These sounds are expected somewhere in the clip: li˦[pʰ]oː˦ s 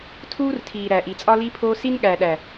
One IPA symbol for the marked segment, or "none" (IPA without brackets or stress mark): pʰ